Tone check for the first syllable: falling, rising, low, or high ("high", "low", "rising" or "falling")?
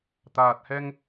low